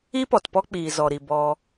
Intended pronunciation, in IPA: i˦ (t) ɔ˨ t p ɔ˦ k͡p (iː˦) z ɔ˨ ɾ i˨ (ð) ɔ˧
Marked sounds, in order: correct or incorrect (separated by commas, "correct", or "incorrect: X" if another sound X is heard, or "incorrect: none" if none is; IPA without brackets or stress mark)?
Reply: incorrect: p, incorrect: iː˨, incorrect: b